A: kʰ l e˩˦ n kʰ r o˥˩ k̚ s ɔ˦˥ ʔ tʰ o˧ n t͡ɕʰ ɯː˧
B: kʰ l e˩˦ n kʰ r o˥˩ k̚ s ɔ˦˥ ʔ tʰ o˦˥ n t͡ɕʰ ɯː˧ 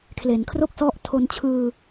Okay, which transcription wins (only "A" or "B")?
A